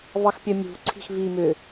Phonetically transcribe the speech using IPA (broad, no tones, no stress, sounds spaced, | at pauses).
v ɑ x pʲ œ mʲ ṳ ǀʰ i̤ x v i m ʏ